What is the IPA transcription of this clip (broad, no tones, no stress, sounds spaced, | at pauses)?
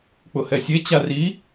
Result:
k͡p ʊ h ɛ sʲ e t͡ɕ a r i